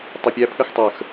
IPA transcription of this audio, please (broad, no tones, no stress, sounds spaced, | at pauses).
tˤ ʌ pʲ æ pʰ ə x tˤ ə˞ x